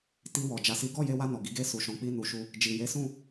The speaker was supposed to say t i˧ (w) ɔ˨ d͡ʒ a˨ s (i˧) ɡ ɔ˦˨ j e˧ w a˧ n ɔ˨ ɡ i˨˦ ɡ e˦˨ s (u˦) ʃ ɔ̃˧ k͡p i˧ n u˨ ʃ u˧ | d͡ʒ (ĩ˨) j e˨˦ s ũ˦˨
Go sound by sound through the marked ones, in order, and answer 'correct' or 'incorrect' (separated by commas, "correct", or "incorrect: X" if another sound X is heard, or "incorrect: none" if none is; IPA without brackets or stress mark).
correct, incorrect: i˨˦, incorrect: u˧, incorrect: i˨